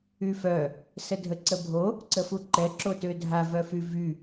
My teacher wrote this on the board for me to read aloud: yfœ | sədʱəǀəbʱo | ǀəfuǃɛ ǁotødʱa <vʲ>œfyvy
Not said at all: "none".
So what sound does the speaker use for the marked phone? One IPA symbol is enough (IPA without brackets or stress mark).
v